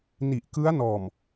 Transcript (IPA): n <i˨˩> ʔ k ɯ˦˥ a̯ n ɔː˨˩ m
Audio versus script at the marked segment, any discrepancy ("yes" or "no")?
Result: no